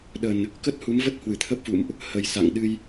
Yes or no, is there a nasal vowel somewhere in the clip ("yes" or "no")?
no